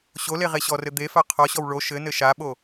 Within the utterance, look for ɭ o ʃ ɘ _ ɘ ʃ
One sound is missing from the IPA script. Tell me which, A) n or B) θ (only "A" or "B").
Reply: A